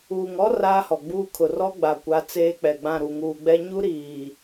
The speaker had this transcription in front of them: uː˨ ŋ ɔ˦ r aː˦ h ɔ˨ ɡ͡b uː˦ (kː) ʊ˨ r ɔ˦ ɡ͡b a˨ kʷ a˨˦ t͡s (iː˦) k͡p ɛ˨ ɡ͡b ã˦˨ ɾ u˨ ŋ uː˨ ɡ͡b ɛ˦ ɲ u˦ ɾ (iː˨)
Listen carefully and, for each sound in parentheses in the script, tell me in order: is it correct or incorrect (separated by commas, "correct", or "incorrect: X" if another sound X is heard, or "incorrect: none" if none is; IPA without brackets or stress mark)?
incorrect: kʰ, incorrect: eː˦, correct